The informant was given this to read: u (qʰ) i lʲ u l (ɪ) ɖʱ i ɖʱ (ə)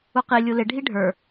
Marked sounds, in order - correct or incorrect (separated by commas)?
incorrect, correct, incorrect